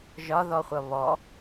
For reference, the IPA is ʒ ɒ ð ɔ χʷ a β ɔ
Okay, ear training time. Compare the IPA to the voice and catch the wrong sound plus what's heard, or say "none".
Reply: a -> ʌ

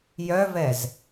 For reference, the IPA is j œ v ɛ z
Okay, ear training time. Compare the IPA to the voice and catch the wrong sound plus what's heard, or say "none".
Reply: none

